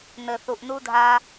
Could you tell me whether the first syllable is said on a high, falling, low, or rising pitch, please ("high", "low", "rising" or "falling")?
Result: low